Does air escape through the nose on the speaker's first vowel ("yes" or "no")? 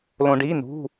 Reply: yes